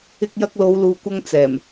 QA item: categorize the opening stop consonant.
plain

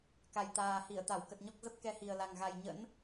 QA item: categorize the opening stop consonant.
plain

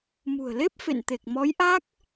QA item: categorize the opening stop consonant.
plain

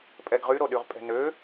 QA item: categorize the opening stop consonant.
ejective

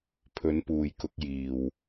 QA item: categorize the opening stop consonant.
aspirated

